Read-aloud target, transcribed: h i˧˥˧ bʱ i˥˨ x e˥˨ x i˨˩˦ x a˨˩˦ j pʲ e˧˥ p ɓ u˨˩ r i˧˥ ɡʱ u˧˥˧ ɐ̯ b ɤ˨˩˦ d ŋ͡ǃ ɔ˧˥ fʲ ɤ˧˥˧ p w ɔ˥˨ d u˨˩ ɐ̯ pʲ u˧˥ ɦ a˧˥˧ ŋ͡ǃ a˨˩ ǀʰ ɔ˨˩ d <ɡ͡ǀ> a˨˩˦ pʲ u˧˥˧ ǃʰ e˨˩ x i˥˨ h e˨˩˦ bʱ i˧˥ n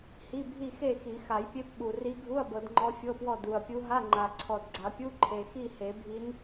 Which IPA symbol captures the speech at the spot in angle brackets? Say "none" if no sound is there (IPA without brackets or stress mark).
ɡ͡ǀ